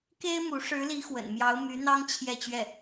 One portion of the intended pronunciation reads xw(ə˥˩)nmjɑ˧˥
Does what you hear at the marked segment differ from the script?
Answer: yes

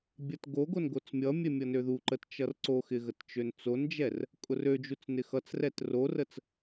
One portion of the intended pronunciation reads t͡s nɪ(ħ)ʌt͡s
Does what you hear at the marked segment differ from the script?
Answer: yes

